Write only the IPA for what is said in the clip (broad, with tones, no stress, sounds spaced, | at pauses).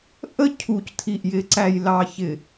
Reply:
ʔ ə˦ cʰ u˨ c tʰ i˨ ʔ j ɪ˨ ǀ æ˨ j l ɑ˨ ç ɪ˨